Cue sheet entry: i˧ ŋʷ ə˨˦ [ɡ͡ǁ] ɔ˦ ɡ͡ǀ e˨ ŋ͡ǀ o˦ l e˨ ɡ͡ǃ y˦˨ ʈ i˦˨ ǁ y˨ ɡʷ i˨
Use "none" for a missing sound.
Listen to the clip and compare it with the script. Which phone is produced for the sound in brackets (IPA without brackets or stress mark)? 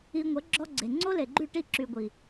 ɡ͡ǁ